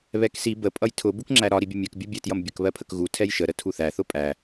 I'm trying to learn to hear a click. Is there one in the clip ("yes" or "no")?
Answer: yes